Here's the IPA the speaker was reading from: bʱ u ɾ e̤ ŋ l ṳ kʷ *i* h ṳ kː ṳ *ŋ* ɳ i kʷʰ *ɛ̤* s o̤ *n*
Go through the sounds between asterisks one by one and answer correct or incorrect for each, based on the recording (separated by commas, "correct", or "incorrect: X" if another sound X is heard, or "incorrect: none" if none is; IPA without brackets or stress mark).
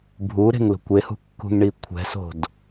incorrect: e, correct, correct, incorrect: d